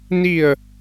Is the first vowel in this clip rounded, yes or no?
no